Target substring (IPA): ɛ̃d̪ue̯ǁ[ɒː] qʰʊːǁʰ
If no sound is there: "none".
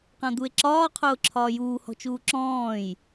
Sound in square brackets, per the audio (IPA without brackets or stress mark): ɒː